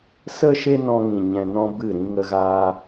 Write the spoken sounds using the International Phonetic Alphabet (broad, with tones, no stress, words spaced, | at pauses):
sə˦ ʃe˦nɔ̃˧ŋĩ˨ ɲɛ̃˧nɔ̃˦bɨ˦˨ɾĩ˦ ŋə˦ɣaː˦